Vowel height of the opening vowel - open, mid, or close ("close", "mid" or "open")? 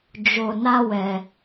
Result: mid